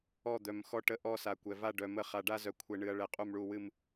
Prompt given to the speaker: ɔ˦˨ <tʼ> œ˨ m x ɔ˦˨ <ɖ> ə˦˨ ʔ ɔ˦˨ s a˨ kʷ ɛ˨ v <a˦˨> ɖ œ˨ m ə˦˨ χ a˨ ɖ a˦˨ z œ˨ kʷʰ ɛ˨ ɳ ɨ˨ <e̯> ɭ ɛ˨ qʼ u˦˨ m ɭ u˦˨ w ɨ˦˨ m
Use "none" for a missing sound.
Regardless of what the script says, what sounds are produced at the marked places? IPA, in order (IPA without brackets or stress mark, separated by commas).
d̪, ʈ, a˦˨, ɐ̯